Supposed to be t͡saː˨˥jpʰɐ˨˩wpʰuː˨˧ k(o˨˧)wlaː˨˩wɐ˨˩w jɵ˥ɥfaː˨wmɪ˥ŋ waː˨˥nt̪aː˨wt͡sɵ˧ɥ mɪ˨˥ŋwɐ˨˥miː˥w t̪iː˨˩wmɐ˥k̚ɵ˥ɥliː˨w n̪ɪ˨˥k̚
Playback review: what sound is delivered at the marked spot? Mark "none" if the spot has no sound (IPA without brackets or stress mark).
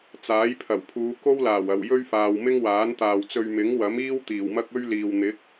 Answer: o˥